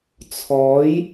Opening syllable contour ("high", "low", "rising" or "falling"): rising